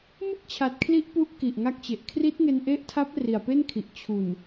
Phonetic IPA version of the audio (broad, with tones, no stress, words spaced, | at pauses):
mɯ˥˩k̚t͡ɕʰa˨˩t̚kʰli˦˥ʔ pu˦˥ʔ ki˨˩ʔŋa˦˥k̚t͡ɕe˨˩ʔ kʰri˦˥t̚ŋe˧nʔe˦˥ʔtʰa˦˥p̚ ri˨˩a̯pe˥˩nkʰi˨˩ʔ t͡ɕʰu˨˩n